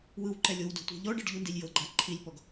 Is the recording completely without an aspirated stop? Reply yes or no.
no